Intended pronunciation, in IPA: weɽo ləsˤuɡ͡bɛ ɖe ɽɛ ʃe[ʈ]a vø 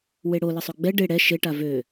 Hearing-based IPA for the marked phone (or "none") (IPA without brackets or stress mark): ʈ